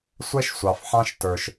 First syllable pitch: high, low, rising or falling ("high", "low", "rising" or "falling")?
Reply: high